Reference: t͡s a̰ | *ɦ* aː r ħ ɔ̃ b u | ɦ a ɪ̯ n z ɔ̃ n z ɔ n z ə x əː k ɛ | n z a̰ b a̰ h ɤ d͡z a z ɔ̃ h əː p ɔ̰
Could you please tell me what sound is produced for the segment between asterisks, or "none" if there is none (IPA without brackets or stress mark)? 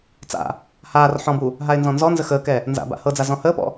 h